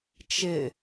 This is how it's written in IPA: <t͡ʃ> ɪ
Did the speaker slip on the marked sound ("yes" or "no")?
no